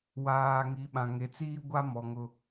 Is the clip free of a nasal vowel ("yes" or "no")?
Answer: no